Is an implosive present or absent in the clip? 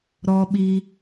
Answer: present